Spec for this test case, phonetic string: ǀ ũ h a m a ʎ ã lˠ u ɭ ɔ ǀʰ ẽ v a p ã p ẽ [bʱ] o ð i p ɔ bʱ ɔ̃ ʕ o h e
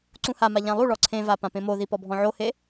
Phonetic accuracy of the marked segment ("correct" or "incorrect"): incorrect